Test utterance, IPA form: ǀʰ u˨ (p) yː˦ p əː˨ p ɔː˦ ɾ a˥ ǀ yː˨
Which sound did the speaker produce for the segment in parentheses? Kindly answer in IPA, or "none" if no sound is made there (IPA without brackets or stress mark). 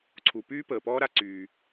p